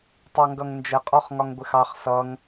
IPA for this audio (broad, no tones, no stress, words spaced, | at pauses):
tˤɑŋɡʌŋnd͡ʒɛ qʼɔχŋɒŋɡʷɪxɑχ sʌŋ